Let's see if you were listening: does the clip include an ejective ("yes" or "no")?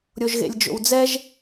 no